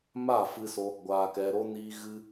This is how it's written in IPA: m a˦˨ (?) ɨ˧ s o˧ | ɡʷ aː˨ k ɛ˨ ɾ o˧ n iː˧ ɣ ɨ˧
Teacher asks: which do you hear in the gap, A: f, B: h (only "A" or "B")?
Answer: A